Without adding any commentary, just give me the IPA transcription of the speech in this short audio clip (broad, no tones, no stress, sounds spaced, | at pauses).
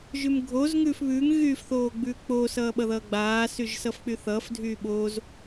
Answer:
ʒ ʉ m ɡʱ o z ŋ ʉː f β ʉː ŋ ɣ yː f θ oː ɡ͡b ʉː k͡p oː s ʌː ɓ ʌ ð ʌː ɡ͡b aː s y ʒ s ʌ f k͡p y θ ʌː f dʱ yː ɓ oː z